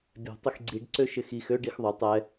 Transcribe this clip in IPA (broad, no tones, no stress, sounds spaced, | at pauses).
bʲ ɛ̤ tˤ ɪ x ɡ͡ǀ i ɖ ǀ ø ʃ ɪ x i x ø ɖ i x ðˤ ø tˤ ɛ